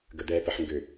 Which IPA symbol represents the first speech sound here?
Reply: ɡ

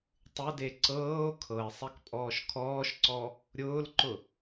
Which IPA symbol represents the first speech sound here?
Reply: tˤ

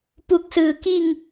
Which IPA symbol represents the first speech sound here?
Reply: p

